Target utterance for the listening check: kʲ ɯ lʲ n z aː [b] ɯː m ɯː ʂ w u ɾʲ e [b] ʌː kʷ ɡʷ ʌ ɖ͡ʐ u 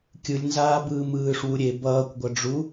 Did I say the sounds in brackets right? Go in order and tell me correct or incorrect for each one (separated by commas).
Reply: correct, correct